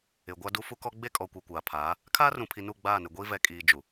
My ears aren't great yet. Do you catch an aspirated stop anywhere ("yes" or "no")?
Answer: yes